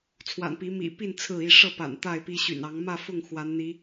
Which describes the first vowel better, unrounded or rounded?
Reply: unrounded